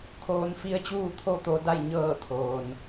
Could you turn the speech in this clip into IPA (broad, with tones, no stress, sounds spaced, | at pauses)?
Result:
kʰ oː˧ n f i˧˥ ə̯ t͡ɕ uː˥˨ t̪ʰ o˥˨ t̪ o˧ d a˥˨ j ɲ ɤː˥˨ t̪ʰ oː˩ n